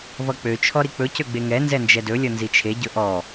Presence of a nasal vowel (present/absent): absent